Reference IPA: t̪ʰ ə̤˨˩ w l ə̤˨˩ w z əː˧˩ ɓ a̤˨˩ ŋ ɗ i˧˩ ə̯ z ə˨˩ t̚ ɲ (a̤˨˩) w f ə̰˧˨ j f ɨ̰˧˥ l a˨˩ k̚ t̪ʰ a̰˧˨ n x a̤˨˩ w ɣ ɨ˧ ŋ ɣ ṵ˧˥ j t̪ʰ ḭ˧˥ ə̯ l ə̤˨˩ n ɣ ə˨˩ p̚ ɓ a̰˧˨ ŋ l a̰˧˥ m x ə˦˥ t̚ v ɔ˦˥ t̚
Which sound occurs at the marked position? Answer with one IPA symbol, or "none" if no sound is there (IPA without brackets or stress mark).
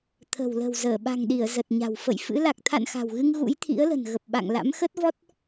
a̤˨˩